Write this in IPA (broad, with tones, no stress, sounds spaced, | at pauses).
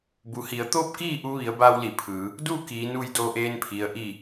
b u˩ h i˩˧ ə̯ t̪ oː˥˨ p̚ k iː˥˨ ʔ u˧ ʋ i˩˧ ə̯ b aː˧ w l i˧˩ pʰ ɯː˩˧ | d u˥˨ k iː˩˧ n u˧ j d oː˧ ʔ eː˧ n pʰ i˩ ə̯ ʔ i˧˩